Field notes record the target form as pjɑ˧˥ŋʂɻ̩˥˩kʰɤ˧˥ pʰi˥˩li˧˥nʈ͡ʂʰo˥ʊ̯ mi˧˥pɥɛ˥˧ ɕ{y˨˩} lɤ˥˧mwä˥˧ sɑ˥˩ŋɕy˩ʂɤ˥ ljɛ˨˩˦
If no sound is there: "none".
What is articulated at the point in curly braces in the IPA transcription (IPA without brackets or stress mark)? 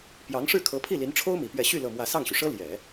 y˥˧